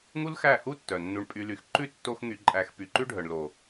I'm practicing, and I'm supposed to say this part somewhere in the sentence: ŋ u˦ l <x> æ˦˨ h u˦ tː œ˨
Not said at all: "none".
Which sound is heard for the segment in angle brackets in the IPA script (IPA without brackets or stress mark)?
x